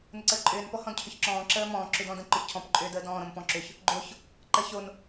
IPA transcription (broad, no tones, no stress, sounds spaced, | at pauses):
n ʊ ǀ əː ǃʼ ʏː n p ɔ h ɔ̃ d cʰ ʏ ç ǁ ɔ̃ː ǁ əː m ɔ̃ː ǁ ʏ d ɔ̃ d ə̃ ǃ ʊ ç cʰ ɔ̃ p ǃʼ ʏː d əː d ɔ̃ː ɾ õ m p ɔ̃ ǁ ʏ ç | ɡ͡ǃ o ç | ǃ əː ç o n